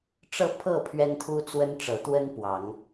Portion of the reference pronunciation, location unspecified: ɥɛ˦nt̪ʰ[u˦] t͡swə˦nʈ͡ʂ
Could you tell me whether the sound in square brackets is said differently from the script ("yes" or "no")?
no